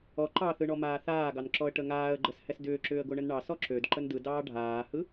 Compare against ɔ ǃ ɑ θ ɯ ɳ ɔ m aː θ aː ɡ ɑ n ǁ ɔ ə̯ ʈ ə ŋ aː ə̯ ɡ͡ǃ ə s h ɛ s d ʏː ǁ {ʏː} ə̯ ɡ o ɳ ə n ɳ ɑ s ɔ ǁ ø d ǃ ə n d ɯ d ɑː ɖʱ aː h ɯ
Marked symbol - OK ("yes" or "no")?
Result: yes